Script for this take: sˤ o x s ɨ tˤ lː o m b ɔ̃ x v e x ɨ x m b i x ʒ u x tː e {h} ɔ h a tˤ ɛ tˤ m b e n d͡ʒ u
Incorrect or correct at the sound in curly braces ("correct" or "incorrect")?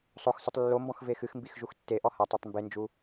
incorrect